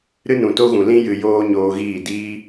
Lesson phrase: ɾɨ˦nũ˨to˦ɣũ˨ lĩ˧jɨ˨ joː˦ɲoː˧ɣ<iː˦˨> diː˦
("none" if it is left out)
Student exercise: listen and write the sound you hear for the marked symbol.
iː˦˨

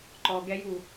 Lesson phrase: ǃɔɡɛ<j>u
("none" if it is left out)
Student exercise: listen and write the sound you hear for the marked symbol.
j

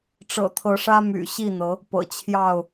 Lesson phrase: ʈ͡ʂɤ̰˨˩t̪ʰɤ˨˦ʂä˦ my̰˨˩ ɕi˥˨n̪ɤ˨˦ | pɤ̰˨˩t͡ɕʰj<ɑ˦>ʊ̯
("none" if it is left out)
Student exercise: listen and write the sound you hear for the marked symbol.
ɑ˥˨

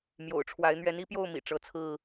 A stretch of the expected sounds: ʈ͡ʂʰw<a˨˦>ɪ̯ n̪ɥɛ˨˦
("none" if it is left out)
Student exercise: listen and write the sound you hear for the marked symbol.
a˨˦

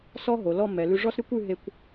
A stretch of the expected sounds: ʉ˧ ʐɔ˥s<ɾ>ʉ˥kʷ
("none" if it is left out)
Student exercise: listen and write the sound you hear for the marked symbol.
ɾ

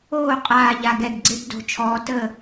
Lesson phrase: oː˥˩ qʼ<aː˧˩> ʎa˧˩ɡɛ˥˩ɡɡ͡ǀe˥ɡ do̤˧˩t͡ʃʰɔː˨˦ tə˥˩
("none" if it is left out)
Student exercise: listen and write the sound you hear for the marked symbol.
aː˧˩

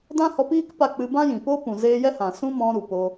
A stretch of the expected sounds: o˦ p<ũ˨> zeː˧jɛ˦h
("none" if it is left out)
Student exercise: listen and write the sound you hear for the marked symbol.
ũ˨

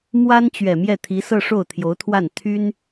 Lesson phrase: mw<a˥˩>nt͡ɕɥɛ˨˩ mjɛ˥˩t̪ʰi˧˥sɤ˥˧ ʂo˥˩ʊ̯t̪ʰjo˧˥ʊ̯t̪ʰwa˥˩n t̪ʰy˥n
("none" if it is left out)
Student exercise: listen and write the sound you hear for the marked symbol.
a˥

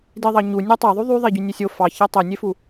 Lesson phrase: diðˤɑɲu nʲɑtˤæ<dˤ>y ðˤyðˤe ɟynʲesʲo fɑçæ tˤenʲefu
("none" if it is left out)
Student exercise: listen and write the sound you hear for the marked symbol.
ðˤ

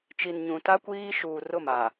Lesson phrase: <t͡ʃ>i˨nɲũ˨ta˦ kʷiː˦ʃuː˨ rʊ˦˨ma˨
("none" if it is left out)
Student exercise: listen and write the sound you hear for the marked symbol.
t͡ʃ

